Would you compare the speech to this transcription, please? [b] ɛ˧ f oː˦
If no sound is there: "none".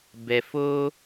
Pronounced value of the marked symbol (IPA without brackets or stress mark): b